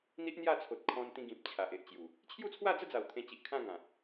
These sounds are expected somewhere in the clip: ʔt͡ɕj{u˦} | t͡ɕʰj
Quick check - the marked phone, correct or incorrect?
incorrect